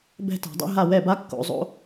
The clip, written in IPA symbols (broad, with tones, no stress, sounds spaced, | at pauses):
b ɛ̤˥˨ t a̤˧˩˧ dˤ ɛ̰˥ ɦ a˥˨ w ɛ˥˨ b a˥ kː o̰˧ zˤ o̰˥